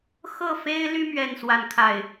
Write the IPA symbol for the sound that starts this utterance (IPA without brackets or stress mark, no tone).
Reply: x